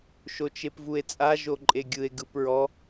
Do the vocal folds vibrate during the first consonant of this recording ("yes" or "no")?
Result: no